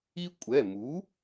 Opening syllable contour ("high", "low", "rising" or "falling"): high